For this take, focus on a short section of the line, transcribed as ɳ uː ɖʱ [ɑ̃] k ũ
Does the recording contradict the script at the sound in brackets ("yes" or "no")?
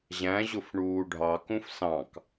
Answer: yes